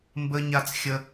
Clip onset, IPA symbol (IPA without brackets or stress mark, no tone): m